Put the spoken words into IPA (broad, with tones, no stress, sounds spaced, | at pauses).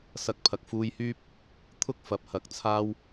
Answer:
s ɐ˧ k̚ pʰ ɐ˨˥ k̚ f uː˧ j h yː˥ p̚ | t̪ʰ ʊ˥ k̚ f ɐ˨˥ p̚ h ɐ˨˥ k̚ t͡sʰ aː˥ w